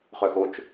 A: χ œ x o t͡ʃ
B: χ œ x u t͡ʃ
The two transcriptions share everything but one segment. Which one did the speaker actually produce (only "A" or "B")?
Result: A